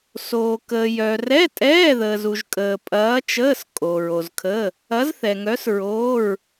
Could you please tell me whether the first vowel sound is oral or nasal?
oral